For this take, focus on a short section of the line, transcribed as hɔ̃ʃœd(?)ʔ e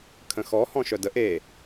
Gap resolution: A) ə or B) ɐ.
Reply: A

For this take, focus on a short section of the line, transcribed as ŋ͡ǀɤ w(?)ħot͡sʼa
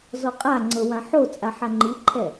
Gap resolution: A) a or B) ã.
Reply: B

